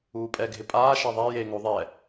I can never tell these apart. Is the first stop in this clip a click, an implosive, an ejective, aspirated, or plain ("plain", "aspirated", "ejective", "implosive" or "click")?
ejective